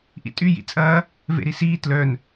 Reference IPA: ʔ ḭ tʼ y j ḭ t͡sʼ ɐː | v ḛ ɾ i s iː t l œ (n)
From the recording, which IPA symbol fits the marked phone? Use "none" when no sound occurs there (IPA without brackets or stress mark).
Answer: n